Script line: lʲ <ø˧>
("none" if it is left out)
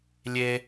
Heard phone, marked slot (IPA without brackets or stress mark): e˧